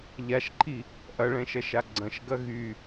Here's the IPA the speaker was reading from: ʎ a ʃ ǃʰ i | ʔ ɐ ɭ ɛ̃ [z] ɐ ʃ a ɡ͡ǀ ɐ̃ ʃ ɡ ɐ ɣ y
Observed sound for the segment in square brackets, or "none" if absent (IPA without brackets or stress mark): ʃ